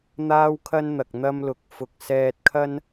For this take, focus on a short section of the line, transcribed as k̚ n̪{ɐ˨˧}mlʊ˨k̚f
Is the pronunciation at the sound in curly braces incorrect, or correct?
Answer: incorrect